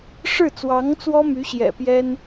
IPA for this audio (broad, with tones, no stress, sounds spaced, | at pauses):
ʂ ɻ̩˥˩ t͡s w ɑ˧˥ ŋ t͡s w ɔ˥ m y˧˥ ɕ j ɛ̰˨˩ p j ɛ˥ n